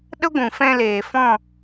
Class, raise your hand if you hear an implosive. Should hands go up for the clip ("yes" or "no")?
yes